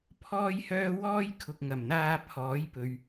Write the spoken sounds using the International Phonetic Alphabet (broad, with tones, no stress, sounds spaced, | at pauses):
pʰ ɔː˥ j h œː˥ w ɔː˥ j kʰ ʊ˨ k̚ ŋ ɐ˨˩ m n̪ aː˧ pʰ ɔː˨˥ j p ɵ˨ ɥ